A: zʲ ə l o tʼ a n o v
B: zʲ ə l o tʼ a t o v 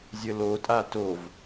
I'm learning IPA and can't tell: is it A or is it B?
B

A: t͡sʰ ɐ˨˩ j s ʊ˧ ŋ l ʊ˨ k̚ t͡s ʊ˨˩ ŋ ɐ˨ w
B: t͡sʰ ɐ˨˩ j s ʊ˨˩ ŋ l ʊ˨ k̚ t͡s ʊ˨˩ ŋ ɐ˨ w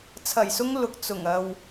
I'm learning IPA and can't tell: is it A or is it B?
A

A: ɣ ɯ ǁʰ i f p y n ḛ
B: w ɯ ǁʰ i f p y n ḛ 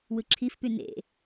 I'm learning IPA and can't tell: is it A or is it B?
B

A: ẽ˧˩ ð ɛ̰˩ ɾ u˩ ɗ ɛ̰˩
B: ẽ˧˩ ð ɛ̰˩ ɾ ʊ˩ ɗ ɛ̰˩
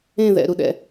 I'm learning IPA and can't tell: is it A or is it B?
A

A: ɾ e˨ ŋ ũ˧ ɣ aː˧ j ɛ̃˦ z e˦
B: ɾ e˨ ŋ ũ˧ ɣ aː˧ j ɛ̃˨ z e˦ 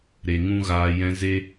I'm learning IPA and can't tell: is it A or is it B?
A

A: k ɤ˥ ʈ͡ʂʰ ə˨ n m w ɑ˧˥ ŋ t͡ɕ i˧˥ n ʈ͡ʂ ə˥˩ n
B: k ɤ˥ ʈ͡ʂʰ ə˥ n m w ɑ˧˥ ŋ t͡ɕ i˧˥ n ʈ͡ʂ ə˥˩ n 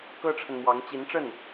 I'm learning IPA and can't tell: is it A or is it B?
A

